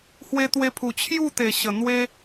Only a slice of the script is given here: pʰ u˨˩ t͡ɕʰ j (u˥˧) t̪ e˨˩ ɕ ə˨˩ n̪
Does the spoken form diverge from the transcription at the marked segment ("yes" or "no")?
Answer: no